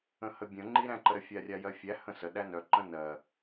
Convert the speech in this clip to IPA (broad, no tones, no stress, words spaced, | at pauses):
ə̃həbʲə̃ ŋ͡ǃiɾæ̃ǃəɾə fʲarʲajɜfʲæ hə̃sə ɗænœ ǃə̃nɜ